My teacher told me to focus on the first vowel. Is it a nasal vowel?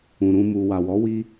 yes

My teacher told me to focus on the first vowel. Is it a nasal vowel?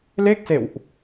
no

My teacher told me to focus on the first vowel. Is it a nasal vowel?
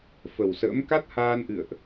no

